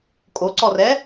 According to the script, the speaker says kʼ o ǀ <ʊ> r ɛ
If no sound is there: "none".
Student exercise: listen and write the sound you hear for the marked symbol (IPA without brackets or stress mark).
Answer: ɔ